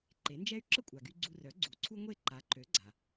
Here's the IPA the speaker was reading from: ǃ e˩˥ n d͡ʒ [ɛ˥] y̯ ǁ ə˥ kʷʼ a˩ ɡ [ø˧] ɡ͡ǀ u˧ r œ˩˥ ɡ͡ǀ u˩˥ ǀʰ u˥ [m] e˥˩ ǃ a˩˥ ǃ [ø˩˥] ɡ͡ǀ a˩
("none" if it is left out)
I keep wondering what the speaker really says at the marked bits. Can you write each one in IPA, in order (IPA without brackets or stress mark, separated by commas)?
ɛ˥, y˧, ŋʷ, ø˩˥